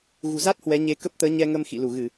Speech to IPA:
ɣ ṳ˨˩ z a˦˥ t̚ h w ɛ˨˦ ɲ e˧ k ə˦˥ p̚ t̪ əː˨˦ ɲ ɛ˧ ŋ ə˧ m x ḭ˧˨ l u˧˩ ɣ ɨ˧˩˨

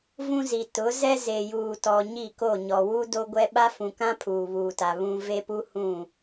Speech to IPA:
v ũ˦ z i˨ t ʊ˨˦ z ɛ˦ z e˨ j uː˨ t ɔ˨ ɲ i˦˨ k o˦˨ ɲ ɔ˨ w u˦ d o˦ ɡʷ ɛ˦ ɓ a˦ f ũ˨ k ã˦ pʰ uː˨ β uː˨ t a˨ β ũ˨ v e˦ p u˦ h ũ˦˨

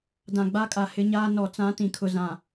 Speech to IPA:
d ã˨ ɡ͡b a˦ kʼ a˨ h ɪ˦ ɲ aː˦ n ɔ˨ t͡s ã˦ t ĩ˨ kʰ ʊ˨ z ã˨

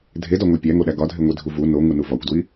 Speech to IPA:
dʱ e d ɒ ŋʷ æ pʲ æ ŋ o ɗ æ ɡ ɒ dʱ e ŋʷ i dʱ u v u n o ŋ u n u v ɒ kʷ d w i

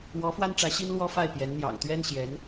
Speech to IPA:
w ɔ˧˥ f w a˥ n ʈ͡ʂ ä˧˥ ɕ i˥ n l w ɔ˥ f a˥˩ ɪ̯ p j ɛ˧˥ n n̪ j ɑ̰˨˩ ŋ t̪ ɥ ɛ˥ n ɕ j ɛ˧˥ n

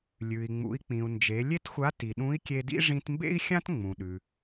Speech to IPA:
lʲ ʉ˩ i̯ ŋ͡m ṵ˩˧ i̯ k͡p ĩ˩ u̯ n d͡ʒ e˩˧ lʲ e˥ t xʷ a˧˥ t i˩ ɗ ũ˧˥ i̯ kʲ e˧ d ḭ˥ ʐ ĩ˧ t m b ḛ˥ i̯ xʲ ã˥ t ŋ͡m ũ˩ ɗ ʉ˩

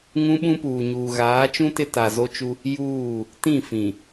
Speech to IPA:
ŋ ũ˦ ɓ ũ˦ p uː˨ ɲ uː˨ ɣ aː˨˦ t͡ʃ ũ˦ t ɪ˦ t a˨ z o˦ t͡ʃ u˦ | j uː˦˨ | t ĩ˦˨ f ĩ˨

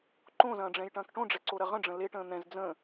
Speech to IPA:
ǃ õ z ɐ̃ː ɖ͡ʐ ɛ̃ j ʈ ɐ̃ː k ʈ õ ɖ͡ʐ ɛ ǀ o ɾ ɐ ʁ ə̃ ɖ͡ʐ ə̃ l e ʈ ə̃ː n̪ ɛ̃ z d͡z ə̃

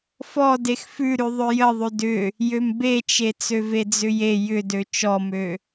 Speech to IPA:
f ɔ d e x f ʉ ɾ ʉ ðˤ ø j ə ðˤ ʉ d ʏ | j ø m b e t͡ʃ e t͡s ø v e d͡z ʏ j e j ʏ d ø t͡ʃ ɔ m ø

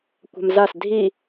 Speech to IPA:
kʷ a̤ m z a s dʱ i

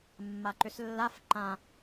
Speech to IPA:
mː a ǃ ʏ s lː a f ǃ ã

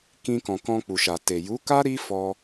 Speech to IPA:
k ĩ˧ k ɔ̃˨ k ɔ̃˧ k͡p u˨ ʃ a˨ t e˨ j u˨˦ k a˦ ɾ i˦ f ɔ˧

